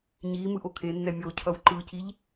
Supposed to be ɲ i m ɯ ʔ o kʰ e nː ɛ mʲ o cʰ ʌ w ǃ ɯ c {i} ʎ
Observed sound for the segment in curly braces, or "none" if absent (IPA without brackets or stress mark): i